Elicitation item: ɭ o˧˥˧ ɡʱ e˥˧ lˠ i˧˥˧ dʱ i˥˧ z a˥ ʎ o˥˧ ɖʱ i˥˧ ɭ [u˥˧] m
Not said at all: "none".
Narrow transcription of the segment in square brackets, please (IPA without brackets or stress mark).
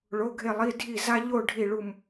u˥˧